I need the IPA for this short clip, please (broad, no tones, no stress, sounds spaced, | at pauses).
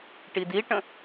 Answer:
ʈ i d i ʈ ə̃